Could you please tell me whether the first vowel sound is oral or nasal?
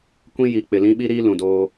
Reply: nasal